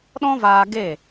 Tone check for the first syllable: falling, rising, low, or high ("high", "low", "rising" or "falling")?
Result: high